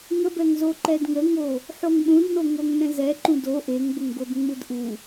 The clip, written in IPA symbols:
ŋ ə b ɛ ŋ z o ǃ ɛ d ŋ ə ŋ o | ħ o ŋ ɗ ũ d n o ŋ o ŋ n ɛ̃ z ɛ ǃ ũ d o ʔ e ŋ b ə ŋ ɡ o d ŋ͡m ɯ d ʔ u

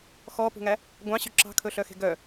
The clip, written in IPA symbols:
x ɔ p ṳ ŋ æ | ɡʷ ɑ̃ ɕ y ǁ ɑ̤ kʰ ɵ ɬ œ x e̤ ɡ œ

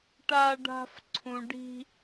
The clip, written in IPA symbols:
ʈ a˥ ɖ a̤˥ f ǀʰ ũ˦ ɖ i̤˥

